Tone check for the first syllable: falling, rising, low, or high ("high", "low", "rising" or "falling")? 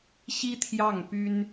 high